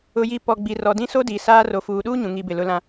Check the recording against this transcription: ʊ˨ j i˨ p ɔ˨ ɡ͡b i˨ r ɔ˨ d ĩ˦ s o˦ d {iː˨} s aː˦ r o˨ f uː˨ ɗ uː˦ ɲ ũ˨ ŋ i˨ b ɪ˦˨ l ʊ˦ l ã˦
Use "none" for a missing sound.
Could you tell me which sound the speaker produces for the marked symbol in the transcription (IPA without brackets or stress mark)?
iː˨